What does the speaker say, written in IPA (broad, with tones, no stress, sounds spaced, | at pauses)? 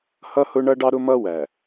h ʌ˦ h ʊ˦ ɳ ʌ˦ ɖ ɑ˦ ɾ ʊ˦ m ʌ˦ w æ˨